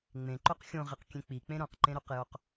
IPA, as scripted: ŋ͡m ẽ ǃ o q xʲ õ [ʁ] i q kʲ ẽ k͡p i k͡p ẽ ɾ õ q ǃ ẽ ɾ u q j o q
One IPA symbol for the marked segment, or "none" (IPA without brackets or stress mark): ʁ